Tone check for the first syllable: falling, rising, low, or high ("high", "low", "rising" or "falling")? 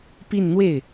falling